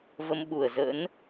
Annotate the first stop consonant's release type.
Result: implosive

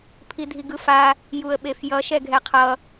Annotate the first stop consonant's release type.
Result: aspirated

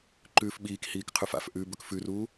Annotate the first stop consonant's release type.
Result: click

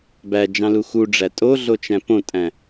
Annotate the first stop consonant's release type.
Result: plain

